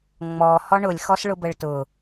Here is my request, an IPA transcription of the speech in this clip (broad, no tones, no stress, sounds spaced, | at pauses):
ŋ͡m ɔ h ɔ ɳ ʊ lʲ x ɔ s ɭ ʊ b ə ɭ t ʊ